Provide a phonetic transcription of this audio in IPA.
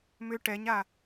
m ʏ ʈ ɛ ɲ a

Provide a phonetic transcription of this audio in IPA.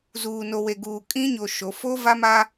z uː˨ n o˨ w e˨ ɡ uː˨ kʼ ĩ˦ ɲ o˨ ʃ o˨˦ f o˦ v a˦ m a˦

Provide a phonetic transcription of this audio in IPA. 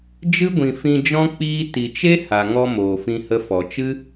d͡ʒ ɨ˦ ɡʷ ĩ˨ f ĩ˧ d͡ʒ ɔ̃˦ k͡p iː˦ t i˨ t͡ʃ e˦ h a˨ ŋ ɔ˧ m oː˨ f ĩ˧ h ə˧ f ɔ˨ t͡ʃ ɨ˦

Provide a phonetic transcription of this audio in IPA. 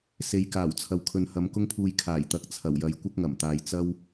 s e˨˧ j k aː˨˩ w t͡sʰ ɐ˨ w kʰ ɵ˨ n h ɐ˨˧ m k ʊ˥ ŋ pʰ uː˧ j kʰ aː˨˩ j t̪ ɐ˨˥ k̚ t͡sʰ ɐ˨˩ w j ɐ˨˧ j kʷ ɐ˥ k̚ ŋ ɐ˨˩ m t̪ aː˨ j t͡s ɐ˥ w

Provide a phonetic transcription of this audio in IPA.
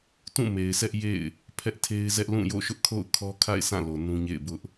t ũ˦˨ m e˨ ɪ̯ s ɛ˦ ʔ j ḛ˦˨ ɪ̯ | pʰ ɛ˦ ʔ tʰ e˦ ɪ̯ z ɛ˦ ʔ l ũ˦˨ j o̰˦˨ ʃ ʊ˦ ʔ kʰ o̰˦˨ ʊ̯ kʰ ɔ˦ kʰ a̰˦˨ ɪ̯ sʰ ã˦˨ l o˨ n ũ˦ ɲ ḛ˦˨ ɪ̯ b ʊ˦ ʔ

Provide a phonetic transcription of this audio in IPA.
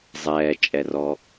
zˤ ɛː t͡ʃʼ ɛ r ɔ

